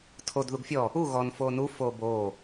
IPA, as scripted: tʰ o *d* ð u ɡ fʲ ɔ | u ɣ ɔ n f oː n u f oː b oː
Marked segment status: correct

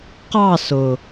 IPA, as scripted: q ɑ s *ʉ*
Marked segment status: incorrect: ʊ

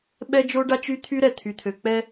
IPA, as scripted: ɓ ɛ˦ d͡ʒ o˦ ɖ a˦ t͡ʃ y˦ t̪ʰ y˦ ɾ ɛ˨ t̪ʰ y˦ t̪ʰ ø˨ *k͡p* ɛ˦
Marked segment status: correct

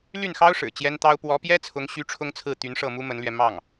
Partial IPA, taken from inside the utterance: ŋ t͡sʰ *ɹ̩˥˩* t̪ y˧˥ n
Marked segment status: correct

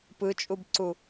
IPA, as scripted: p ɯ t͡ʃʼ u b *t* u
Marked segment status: incorrect: ǀ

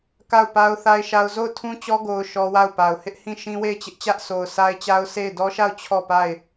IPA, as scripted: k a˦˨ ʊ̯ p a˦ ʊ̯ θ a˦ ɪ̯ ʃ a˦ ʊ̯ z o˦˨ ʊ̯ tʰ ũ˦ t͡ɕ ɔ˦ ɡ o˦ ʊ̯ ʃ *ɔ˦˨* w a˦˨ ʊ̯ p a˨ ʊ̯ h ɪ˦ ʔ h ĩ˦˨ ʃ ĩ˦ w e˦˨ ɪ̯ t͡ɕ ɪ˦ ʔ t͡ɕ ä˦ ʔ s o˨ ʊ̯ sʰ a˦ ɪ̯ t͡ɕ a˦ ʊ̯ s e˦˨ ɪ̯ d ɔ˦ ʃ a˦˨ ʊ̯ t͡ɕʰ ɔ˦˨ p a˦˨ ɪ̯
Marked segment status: incorrect: ɔ˦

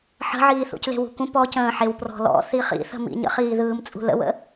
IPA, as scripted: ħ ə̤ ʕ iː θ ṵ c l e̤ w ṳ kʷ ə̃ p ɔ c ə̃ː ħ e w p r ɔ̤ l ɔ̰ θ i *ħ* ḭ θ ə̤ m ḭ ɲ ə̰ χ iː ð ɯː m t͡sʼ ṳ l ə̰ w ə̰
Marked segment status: incorrect: χ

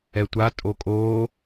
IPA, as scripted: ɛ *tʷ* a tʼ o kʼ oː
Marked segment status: correct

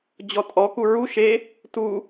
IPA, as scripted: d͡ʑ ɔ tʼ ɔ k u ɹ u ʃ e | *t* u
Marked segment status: correct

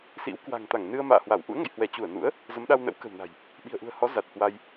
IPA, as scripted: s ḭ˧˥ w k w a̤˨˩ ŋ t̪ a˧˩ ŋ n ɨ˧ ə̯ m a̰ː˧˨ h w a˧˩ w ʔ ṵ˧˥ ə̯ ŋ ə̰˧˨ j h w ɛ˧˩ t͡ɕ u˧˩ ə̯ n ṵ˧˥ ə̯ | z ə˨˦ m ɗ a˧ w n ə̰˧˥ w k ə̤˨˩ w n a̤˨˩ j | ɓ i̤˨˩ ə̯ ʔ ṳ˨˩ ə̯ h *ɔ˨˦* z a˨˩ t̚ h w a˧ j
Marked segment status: correct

